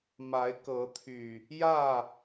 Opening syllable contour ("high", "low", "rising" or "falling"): rising